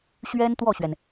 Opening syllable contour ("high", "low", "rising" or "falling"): high